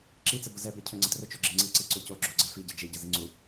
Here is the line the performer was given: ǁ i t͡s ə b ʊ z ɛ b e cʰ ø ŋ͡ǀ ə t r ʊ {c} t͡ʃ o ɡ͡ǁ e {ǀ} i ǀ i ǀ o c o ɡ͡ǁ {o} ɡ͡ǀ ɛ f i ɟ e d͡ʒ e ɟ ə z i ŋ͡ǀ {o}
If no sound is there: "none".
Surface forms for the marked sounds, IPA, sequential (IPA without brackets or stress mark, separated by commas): none, ŋ͡ǀ, o, u